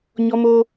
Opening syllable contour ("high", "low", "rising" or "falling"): high